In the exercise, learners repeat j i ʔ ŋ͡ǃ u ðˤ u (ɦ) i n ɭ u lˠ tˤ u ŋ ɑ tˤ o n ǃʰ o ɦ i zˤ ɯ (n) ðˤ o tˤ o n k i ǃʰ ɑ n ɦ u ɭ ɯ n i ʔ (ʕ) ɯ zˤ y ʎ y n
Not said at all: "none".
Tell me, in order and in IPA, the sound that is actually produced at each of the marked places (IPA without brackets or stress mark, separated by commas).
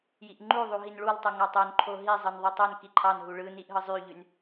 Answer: ɦ, n, ɦ